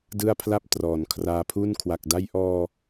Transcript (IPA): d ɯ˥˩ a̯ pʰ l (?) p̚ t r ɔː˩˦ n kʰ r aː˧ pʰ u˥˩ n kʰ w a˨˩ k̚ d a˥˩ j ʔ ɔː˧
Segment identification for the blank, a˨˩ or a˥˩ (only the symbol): a˥˩